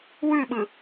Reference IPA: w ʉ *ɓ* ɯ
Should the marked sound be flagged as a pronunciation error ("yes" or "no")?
no